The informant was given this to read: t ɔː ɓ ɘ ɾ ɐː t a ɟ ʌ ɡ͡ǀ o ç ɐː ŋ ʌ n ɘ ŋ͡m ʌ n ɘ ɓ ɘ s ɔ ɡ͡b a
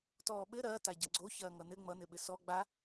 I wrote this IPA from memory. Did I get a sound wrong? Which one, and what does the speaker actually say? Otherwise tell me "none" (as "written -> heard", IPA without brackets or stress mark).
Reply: none